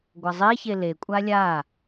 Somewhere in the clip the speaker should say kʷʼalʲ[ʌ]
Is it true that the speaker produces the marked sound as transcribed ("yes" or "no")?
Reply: no